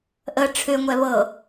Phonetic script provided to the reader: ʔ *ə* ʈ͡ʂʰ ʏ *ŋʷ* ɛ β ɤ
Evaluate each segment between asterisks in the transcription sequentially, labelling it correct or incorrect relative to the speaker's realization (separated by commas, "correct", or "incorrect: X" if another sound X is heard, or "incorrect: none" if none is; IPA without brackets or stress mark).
correct, correct